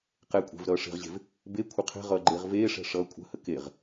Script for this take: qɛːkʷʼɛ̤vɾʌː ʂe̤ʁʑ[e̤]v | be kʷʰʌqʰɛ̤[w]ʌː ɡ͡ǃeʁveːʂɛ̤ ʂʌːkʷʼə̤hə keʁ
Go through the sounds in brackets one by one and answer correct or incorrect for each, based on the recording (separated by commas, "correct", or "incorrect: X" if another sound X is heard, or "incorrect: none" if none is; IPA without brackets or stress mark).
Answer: correct, incorrect: ʁ